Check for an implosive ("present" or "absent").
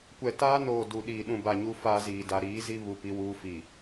present